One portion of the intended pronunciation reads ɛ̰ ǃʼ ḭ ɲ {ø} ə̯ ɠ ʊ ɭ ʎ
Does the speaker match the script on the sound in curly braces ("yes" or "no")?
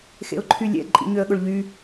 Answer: yes